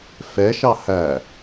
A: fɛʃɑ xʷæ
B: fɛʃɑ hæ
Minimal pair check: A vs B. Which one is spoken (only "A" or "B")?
B